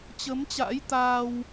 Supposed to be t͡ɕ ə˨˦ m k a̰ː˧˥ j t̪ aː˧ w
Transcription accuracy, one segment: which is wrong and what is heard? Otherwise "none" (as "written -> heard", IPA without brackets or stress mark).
k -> t͡ɕ